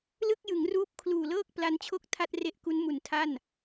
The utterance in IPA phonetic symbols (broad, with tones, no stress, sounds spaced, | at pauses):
l ɯ˥˩ k̚ j ɯ˩˦ ŋ r uː˦˥ p̚ kʰ l uː˨˩ l ɤː˥˩ k̚ p l a˦˥ n t͡ɕʰ o˥˩ k̚ tʰ a˥˩ t̚ r e˦˥ ʔ k u˦˥ n m u˨˩ n tʰ a˥˩ n